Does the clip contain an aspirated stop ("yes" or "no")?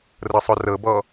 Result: no